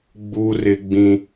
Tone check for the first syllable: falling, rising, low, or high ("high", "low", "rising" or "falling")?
high